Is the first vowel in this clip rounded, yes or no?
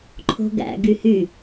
yes